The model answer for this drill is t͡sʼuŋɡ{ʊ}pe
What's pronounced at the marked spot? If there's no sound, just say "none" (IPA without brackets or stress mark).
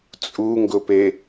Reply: ʊ